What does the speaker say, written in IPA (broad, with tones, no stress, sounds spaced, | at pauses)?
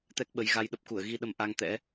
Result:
t̪ ɛ˦˥ k̚ ɓ ə˨˦ j ɣ a˧ j ɗ ə˦˥ p̚ k u˧˩ ə̯ ɣ i˧ ɗ ə˧ m ʔ a˧ ŋ t̪ ɛ̰˧˥